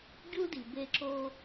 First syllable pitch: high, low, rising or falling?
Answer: high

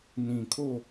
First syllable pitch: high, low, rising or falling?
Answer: low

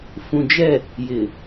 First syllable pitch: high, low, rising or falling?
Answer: low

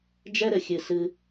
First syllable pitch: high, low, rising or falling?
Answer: high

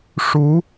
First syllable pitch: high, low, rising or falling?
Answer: rising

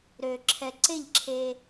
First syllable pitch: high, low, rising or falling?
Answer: low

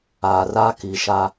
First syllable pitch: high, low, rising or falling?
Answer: low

